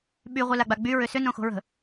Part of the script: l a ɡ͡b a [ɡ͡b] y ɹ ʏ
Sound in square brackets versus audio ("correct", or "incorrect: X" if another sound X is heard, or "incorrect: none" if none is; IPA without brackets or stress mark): correct